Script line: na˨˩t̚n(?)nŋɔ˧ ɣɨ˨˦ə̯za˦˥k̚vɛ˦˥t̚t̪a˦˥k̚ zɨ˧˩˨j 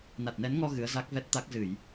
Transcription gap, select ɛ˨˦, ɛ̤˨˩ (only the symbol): ɛ˨˦